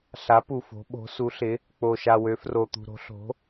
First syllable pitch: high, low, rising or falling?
rising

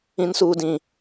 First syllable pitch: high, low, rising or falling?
high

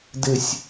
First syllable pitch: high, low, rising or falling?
low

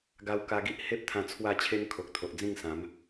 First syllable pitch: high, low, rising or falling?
high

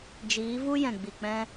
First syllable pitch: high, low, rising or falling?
rising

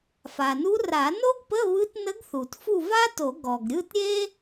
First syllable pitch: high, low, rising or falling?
low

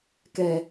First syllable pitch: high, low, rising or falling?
low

